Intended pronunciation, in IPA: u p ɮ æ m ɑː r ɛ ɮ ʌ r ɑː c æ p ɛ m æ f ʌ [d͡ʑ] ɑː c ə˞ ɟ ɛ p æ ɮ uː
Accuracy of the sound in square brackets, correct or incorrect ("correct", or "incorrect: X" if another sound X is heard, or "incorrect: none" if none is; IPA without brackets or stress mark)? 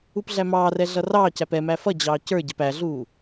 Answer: correct